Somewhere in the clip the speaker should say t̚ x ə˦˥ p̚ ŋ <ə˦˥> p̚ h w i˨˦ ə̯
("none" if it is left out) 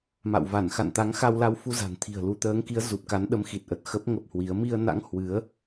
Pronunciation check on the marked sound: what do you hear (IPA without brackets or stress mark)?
ə˦˥